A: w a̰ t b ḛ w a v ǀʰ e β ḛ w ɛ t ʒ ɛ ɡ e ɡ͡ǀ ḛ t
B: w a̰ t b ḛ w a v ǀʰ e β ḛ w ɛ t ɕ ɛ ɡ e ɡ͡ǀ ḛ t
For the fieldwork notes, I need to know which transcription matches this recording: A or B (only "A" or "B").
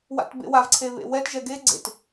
A